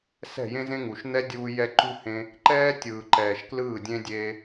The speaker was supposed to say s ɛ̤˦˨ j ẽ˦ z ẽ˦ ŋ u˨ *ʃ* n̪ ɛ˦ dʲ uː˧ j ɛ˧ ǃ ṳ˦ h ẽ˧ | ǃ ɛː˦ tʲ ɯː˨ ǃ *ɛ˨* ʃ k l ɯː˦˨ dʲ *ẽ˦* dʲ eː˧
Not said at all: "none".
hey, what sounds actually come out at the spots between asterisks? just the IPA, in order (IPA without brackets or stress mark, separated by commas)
ʃ, ɛː˨, ẽ˦